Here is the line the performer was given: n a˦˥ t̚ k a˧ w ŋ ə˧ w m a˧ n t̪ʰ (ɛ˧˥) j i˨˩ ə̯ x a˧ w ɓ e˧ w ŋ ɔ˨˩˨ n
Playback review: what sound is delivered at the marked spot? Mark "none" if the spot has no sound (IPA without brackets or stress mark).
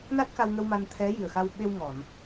ɛ˧˥